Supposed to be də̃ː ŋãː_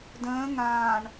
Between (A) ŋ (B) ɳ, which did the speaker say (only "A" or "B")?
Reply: B